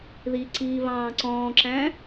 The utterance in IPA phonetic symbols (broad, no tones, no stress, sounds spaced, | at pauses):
ð i ǀ iː β ɑ̃ː ǀ ɔ̃ː ǁ æ̃